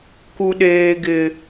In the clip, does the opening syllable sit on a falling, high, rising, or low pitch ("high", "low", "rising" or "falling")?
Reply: high